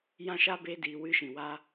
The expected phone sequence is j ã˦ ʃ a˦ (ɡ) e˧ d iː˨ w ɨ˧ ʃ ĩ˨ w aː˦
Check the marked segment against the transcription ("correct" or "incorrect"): incorrect